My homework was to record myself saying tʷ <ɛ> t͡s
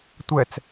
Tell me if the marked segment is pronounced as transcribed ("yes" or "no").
yes